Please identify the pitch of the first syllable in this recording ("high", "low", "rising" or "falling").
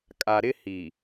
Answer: low